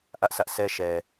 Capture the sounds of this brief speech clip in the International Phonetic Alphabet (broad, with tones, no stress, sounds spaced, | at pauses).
ʔ ä˦ ʔ sʰ ä˦ ʔ sʰ ɛ˦ ʃ ɛ˨